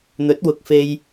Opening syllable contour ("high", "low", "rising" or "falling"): rising